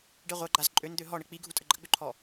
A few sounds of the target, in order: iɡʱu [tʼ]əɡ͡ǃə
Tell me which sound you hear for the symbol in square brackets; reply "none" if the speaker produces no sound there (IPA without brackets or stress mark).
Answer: tʼ